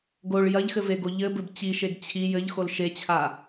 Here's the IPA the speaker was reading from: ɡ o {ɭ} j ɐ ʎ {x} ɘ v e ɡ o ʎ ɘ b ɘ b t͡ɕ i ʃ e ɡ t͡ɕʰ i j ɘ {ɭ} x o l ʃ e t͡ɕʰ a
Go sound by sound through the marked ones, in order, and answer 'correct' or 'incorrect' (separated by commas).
correct, correct, incorrect